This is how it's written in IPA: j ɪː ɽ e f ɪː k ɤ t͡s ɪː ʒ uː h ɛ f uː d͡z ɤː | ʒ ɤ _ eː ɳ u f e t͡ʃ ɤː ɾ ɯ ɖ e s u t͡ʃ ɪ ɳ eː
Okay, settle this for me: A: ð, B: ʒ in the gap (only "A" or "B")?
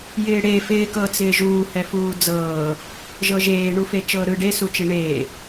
B